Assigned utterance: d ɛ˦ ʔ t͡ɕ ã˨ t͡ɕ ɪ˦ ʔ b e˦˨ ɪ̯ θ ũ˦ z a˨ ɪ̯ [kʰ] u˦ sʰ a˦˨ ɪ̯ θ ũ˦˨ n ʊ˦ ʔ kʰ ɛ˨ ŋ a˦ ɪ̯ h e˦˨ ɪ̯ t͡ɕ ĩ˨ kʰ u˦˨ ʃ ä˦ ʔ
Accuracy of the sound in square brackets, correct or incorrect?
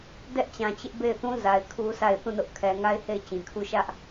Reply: correct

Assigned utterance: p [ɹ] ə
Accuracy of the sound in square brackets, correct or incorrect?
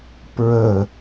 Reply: correct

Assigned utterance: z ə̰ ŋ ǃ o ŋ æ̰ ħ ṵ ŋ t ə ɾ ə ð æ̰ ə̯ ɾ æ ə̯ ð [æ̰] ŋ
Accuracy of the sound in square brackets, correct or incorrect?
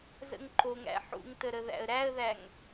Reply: incorrect: æ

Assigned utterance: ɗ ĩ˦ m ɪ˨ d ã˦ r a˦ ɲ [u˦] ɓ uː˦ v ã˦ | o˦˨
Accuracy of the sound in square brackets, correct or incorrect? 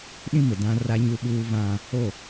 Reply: correct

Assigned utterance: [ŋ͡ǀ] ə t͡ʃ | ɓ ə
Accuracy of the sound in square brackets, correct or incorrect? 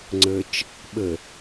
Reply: correct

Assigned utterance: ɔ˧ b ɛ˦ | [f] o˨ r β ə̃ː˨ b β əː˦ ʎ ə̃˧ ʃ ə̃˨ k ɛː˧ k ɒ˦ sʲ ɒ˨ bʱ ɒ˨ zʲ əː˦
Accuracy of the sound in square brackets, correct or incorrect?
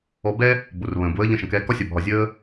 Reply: incorrect: b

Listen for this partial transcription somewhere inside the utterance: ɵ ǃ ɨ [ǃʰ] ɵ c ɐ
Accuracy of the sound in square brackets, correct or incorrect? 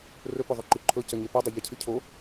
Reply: correct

